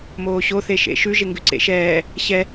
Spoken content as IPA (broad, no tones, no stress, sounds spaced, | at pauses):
m oː ɕ o θ e ʃ ḛ ʃ ʉ ʒ e ŋ ɡ ʉ ǀ ḛ ʃ ɛː | ɕ ɛ